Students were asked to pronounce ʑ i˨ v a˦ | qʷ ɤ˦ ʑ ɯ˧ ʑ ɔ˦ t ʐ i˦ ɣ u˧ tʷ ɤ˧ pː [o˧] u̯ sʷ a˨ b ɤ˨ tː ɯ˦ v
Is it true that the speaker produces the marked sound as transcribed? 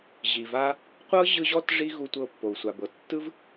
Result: no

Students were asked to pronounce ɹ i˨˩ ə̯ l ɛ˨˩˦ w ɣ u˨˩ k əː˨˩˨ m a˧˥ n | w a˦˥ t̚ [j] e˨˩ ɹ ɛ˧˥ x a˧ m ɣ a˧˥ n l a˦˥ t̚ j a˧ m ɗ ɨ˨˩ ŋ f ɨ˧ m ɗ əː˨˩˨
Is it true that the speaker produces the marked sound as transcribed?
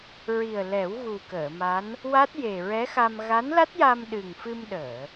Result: yes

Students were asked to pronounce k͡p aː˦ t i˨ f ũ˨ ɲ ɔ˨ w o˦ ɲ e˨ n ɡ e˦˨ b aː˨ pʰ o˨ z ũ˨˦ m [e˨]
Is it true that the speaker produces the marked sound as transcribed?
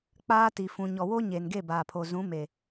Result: yes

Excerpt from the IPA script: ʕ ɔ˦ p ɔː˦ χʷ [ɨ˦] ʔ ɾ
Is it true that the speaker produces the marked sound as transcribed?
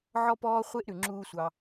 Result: no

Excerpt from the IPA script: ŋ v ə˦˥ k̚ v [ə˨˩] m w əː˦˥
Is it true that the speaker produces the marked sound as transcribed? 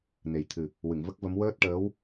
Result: no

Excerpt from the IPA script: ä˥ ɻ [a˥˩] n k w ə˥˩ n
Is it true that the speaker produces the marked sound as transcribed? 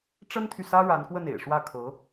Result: no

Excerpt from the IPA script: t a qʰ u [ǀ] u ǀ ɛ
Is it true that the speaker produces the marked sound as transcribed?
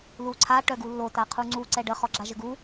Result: no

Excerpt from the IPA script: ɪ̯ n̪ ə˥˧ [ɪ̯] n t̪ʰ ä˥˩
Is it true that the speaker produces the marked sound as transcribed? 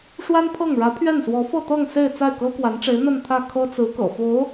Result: no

